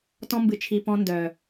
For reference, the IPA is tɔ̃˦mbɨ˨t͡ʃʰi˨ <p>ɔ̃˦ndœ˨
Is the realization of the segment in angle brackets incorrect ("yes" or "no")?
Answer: no